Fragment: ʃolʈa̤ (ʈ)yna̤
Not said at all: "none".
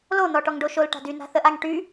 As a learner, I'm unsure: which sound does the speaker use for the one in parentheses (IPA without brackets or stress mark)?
d